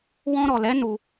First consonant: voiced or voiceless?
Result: voiced